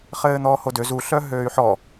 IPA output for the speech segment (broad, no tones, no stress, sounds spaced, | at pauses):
χ ɘː n̪ ɔː h o d ø z u ɬ œ ɦ øː y̯ ħ ɔ